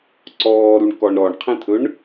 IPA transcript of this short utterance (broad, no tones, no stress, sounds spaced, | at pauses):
ǀ ɔː ɾ u ɳ k ɔ ɳ ɾ ɔ ɳ qʰ ɛ̃ t̪ʰ ɵ ɳ